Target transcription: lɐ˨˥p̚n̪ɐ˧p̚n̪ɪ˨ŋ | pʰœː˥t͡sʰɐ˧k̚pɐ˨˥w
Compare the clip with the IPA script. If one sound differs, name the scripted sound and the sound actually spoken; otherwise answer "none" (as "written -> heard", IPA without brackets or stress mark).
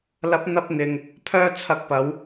none